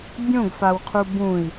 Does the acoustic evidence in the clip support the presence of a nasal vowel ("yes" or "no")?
yes